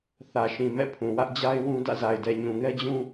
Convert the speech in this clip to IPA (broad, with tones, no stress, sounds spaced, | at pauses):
θ ä˨ ʃ ĩ˨ m ɛ̰˦˨ pʰ ũ˨ w ä˦ ʔ d͡ʑ a˦ ɪ̯ w ũ˦ d ä̰˦˨ z a˨ ɪ̯ d ɛ˨ ɲ ũ˨ ŋ ɛ˦ d͡ʑ ũ˦